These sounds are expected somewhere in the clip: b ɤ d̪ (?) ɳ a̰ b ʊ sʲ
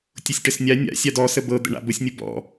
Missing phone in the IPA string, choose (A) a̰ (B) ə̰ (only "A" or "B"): B